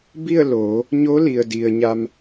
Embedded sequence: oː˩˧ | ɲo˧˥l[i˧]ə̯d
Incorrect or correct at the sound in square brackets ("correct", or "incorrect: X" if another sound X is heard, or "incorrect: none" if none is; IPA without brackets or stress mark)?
incorrect: i˩